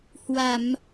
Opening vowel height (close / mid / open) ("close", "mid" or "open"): open